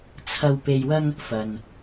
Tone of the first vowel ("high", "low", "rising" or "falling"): low